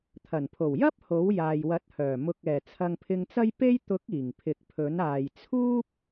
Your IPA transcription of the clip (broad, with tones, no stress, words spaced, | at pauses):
t̪ʰɐ˨˩npʰo˨˩wjɐ˥p̚ ho˨˥wjaː˨jwɐ˨˥t̚hœː˨˩ mʊ˨k̚ɛː˨˩ t͡sʰɐ˧ŋpʰɪ˧ŋt͡sɐ˥j pe˥j t̪ʊ˨˥k̚ iː˨˩ŋpʰɪ˨˥k̚pʰɵ˨˥n aː˨jt͡sʰuː˥p̚